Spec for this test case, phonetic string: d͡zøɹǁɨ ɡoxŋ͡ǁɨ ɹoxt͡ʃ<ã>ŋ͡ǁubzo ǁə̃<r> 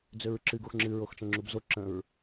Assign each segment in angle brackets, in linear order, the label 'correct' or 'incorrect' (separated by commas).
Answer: incorrect, incorrect